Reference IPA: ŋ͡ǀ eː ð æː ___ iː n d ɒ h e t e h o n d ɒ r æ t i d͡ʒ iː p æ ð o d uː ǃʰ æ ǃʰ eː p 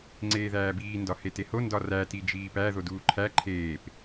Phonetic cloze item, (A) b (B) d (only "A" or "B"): A